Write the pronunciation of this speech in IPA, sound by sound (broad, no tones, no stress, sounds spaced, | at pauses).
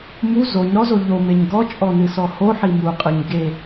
m u z o ɲ ɾ ɔ z o ʎ o m e ɲ ɡ ɔ t͡ʃʼ ɔ n ɨ s ɔ h o ħ i m u qʼ ɨ ɲ ɡ e